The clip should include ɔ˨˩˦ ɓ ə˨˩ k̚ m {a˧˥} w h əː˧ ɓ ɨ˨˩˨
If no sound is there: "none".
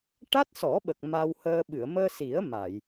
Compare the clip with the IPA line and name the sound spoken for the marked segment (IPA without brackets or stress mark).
a˧